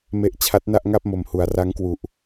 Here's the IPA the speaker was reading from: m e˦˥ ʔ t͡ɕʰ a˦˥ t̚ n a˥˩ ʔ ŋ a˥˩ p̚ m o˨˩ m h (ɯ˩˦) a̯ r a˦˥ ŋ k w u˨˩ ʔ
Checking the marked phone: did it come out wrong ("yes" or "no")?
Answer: yes